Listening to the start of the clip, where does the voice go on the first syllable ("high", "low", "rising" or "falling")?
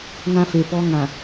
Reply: high